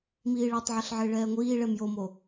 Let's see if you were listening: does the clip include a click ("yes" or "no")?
no